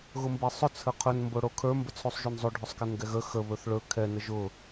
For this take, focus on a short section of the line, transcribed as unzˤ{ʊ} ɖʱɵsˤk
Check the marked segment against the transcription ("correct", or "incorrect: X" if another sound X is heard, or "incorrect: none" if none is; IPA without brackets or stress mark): incorrect: ɵ